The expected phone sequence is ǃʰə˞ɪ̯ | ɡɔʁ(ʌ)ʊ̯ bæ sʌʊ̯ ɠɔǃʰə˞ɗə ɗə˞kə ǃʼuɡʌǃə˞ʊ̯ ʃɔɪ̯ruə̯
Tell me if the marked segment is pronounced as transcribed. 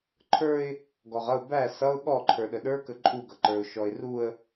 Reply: yes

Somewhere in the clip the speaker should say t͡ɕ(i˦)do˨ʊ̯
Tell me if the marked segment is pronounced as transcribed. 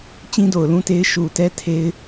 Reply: no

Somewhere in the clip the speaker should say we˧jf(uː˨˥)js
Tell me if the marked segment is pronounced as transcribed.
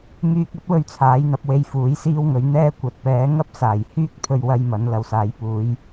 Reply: yes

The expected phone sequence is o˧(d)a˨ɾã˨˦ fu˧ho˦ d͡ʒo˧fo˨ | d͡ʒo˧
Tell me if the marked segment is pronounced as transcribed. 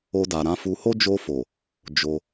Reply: yes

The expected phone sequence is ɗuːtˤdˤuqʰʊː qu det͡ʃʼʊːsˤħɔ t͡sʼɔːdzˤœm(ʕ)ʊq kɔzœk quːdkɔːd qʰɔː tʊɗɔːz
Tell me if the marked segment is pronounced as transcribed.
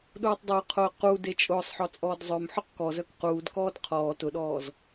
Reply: no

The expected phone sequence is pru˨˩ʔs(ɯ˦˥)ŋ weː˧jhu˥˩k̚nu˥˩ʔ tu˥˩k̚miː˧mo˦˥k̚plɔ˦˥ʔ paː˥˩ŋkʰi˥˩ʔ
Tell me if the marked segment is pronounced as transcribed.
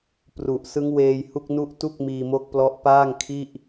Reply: yes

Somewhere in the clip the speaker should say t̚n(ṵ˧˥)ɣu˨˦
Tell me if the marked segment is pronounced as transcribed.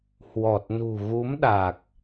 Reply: no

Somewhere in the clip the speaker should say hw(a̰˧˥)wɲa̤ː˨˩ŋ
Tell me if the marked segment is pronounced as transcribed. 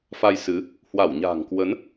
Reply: no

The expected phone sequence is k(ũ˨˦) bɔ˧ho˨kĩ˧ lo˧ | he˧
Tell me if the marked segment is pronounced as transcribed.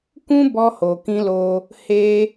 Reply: no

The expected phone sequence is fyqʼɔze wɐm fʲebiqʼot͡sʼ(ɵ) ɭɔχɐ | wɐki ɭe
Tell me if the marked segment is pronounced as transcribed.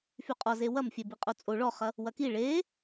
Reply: no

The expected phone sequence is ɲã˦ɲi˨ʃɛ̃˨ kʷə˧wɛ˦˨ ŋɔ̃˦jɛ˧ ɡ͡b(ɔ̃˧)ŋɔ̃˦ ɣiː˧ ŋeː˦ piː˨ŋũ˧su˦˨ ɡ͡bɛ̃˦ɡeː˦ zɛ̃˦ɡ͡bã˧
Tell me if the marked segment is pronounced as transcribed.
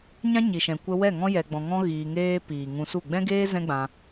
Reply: yes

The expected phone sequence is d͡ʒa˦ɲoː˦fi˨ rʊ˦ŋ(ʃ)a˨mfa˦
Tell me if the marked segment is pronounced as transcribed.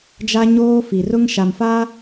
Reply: yes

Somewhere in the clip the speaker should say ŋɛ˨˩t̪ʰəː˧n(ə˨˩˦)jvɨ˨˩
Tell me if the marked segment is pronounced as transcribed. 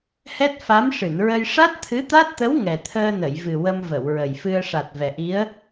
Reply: no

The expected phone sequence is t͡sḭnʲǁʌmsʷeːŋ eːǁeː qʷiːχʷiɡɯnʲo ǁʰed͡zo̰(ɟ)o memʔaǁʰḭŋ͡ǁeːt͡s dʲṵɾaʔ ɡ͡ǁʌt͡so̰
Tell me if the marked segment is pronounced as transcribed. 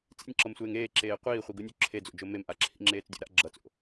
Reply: no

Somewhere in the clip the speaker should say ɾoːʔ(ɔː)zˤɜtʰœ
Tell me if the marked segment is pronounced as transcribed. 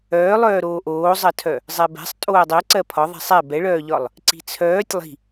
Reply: no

